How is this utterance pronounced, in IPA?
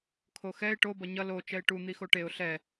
kʰoxɛɪ̯ ʈo bʌɲʌ lo t͡ʃɛɪ̯ʈu n̪ixoʈeʊ̯ ɬɛ

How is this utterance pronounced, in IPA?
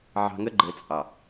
ʕɑ̤˨ŋə˦ɡ͡ǃɘ˨ t͡sʼɑ˨

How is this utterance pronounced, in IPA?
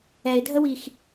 ɛɪ̯dʱəwix

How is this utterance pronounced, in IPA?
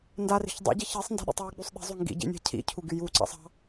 ndari̤ç dˤṵɟi çisˤ nda̤ɗḭtˤwɪɡ͡bysˤ ɗi̤zˤy ŋɡḭɟḭ nʲa̤cʰḭcʰu ɡyjuǀɑ̰sˤ ɑ̤

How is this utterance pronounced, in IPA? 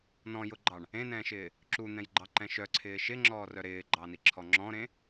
nɔ̃jʊɡ͡ǃɑɳ | ẽnɛ̃ːʃɪː | ǁun̪ɛ̃jɡ͡ǃɑǃɛ̃ ʃœǀʰɪː ʃɪŋ͡ǁɔːrœ ɾɪːɡ͡ǃɑniǁʰɔ ŋ͡ǁɔ̃ɾẽ

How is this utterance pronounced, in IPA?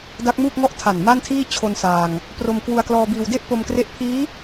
da˦˥k̚ muː˥˩k̚ŋɔ˥˩ʔ tʰa˨˩n ma˥˩ntʰiː˥˩ t͡ɕʰo˧nsaː˧ŋ | pro˧mkwu˧a̯klɔː˧biː˧w de˥˩ʔpo˧mkre˦˥ʔ pʰiː˦˥

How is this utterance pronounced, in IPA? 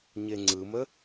ɲeŋ͡ǀɯmə

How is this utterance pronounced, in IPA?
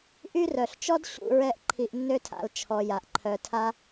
ʔy˦rœ˩ɬt͡ʃɔ˥d ɕṵ˨ ɹɛ˦ʔǃʰi˨ʔnːø˥tʰa̰˨l t͡ʃʰɔ˨ja˩ʔ ǃʰœ˩tʰa˦

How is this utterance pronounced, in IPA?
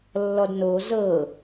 lːɔdno zɤ

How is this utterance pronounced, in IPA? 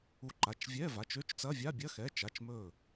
u˧˩ǃa˩˧˩t͡ʃ vʲɛ˧˥˧ va˩˧˩t͡ʃø˧˥˧t͡ʃt͡sɐ˧˥˧vʲa˧˥˧ bʲɐ˧˥˧ xɛ˩˧˩t͡ʃa˩˧˩t͡ʃmɵ˧˩

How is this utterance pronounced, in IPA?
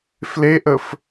fleʔəf

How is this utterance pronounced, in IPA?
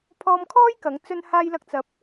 pʰɔː˧mkʰɔː˥j kɐ˨˥ŋt͡sɵ˥n haː˥jlɐ˥k̚ t͡sɐ˧p̚

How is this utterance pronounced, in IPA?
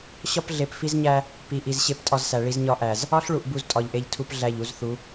ɕɒ˦pɮe˨pfi˦z ɲæ˦ | pi˨ʔi˨z ɕe˦ptʼɒ˦zsæ˨ɭi˦z ɲɒ˦ʔæ˨z | ɒ˦ɬ ɭu˦˨ʔbu˦z tʼɒ˨ʎʔe˦ʎtʰu˦p ɮæ˦˨ʎu˦zθu˨˦

